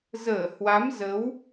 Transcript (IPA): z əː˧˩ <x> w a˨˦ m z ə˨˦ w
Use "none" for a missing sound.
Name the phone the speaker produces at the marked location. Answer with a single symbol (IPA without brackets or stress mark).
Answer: h